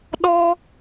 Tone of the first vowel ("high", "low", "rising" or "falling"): high